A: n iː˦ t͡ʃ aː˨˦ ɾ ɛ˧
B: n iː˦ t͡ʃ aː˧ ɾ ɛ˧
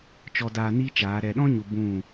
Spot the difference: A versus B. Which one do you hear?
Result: A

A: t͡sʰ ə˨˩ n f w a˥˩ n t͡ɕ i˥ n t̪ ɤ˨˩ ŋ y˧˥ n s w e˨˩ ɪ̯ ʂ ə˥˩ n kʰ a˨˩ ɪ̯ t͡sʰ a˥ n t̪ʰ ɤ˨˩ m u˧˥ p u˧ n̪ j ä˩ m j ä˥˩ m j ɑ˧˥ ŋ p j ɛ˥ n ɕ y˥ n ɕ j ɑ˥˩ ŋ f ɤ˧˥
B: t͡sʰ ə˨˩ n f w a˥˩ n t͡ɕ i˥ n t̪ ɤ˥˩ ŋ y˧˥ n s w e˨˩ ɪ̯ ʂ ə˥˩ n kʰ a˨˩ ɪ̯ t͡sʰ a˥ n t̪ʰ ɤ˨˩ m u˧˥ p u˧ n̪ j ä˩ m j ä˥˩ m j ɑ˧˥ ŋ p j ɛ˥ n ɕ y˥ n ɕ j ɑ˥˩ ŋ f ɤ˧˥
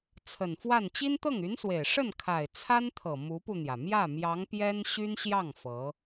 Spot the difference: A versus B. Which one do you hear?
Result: B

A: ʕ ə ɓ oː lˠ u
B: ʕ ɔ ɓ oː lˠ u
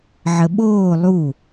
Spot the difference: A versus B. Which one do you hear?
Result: A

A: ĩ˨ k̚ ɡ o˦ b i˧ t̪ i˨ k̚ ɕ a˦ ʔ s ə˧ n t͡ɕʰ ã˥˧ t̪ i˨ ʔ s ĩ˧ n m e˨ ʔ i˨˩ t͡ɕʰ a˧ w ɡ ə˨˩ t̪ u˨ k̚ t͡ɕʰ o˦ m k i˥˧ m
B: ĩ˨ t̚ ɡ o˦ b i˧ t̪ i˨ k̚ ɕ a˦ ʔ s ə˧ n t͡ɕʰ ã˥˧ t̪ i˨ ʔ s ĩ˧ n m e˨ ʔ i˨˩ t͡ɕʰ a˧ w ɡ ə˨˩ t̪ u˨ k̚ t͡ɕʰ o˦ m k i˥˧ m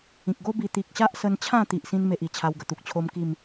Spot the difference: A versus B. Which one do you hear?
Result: A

